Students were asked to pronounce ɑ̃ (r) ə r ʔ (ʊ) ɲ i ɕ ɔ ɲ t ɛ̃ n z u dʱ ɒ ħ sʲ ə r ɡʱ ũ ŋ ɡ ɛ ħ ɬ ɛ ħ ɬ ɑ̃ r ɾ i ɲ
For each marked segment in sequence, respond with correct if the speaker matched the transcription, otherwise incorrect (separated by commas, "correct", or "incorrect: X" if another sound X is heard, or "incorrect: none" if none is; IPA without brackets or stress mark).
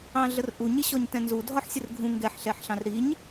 incorrect: ɮ, incorrect: u